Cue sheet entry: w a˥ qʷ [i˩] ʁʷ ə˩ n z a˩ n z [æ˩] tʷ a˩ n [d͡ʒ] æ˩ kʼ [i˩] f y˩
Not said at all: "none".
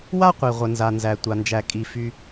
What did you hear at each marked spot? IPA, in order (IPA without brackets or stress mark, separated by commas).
i˩, æ˩, d͡ʒ, i˩